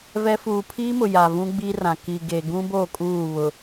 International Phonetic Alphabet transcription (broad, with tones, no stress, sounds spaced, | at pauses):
v ɛ˦ f uː˨ pʰ iː˦ m ʊ˨ j a˨ v ũ˦ ɡ͡b i˦ r ã˨ k i˨ ɡ e˨ ɡ ũ˦ b oː˦˨ kʼ uː˦˨ β ʊ˨